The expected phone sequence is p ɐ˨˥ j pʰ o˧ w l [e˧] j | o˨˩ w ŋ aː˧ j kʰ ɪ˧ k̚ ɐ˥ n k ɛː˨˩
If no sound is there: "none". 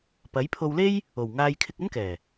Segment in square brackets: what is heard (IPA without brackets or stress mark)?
e˥